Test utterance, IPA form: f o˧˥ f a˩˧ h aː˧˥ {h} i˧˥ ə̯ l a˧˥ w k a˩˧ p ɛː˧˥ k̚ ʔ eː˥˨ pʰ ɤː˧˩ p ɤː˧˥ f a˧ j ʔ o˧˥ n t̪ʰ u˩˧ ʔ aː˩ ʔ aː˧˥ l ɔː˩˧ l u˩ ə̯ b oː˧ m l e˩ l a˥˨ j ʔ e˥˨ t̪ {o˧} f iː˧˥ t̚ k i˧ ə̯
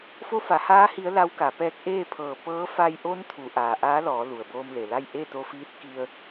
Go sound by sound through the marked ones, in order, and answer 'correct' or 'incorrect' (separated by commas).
correct, correct